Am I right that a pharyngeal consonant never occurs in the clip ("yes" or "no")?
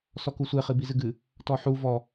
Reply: no